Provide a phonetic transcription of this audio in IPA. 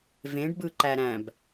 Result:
vẽɖ bɯǃæɾæ̃b

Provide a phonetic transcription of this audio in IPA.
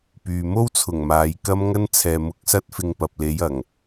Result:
pyː˨ mo˥wt͡sʰʊ˨˩ŋ maː˨jkɐ˥m ŋɐ˥nt͡sʰɛː˨ mʊ˨˥k̚ sɐ˥t̚fɪ˧ŋpɐ˨p̚le˨˧j ɐ˨˩ŋ

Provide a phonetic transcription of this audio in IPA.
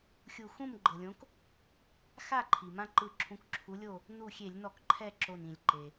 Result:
xʲu˧˩xũ˥˨m ɡ͡ǃɤ˩lʲõ˨˥k | xa˥˨ǃʰi˩mã˦ǃɯ˧˩ ǁʰũ˨˥kǁʰu˨˥lʲo˥˨ | nu˥˨ xʲe˧˩˧lʲnɔ˧˩˧k ǃʰɛ˥˨ǁo˧˩nĩ˧˩˧lʲ ǃe˩

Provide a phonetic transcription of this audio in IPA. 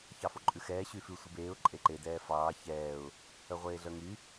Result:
çɑfoǃʼʉxɛː ɕyfʉ sʷebeːʊ̯ ǃʼeǃe dɛːfɑː çɛːʊ̯ | œʁʷeːɮœŋy

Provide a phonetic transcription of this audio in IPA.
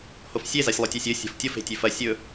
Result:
hofsʲe zasʲlˠutʲasʲɵ sʲo̤ftʲof e̤tʲʉfɐ sʲɵ

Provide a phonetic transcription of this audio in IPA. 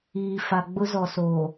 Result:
iː˨ fa˨ɡ͡bʊ˦ zɔ˨soː˨

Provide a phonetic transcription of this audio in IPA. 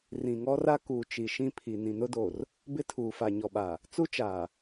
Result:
rĩ˨ŋɔ˦ra˦ kuː˨ t͡ʃi˨ ʃĩ˦pʰi˨ nĩ˨nʊ˦do˨r | bɪ˦tʰuː˨fa˨ ɲɔ˨ɓa˨ | t͡su˦t͡ʃaː˨

